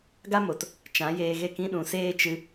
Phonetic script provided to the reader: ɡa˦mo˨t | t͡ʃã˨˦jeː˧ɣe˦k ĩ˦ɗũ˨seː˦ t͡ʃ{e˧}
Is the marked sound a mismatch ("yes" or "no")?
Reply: yes